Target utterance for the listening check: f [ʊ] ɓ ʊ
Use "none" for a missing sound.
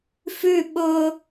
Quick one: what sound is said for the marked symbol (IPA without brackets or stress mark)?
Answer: ʉ